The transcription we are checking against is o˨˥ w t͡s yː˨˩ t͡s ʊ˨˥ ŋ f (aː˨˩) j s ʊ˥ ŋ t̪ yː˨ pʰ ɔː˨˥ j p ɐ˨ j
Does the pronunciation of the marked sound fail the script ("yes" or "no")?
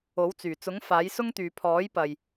yes